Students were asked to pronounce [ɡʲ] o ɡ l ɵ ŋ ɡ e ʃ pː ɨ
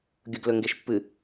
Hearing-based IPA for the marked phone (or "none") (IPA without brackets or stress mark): ɡʲ